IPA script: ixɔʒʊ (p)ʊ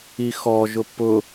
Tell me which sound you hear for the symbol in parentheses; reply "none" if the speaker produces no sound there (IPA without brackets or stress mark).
p